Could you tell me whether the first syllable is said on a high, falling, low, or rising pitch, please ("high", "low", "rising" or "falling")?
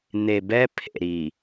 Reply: low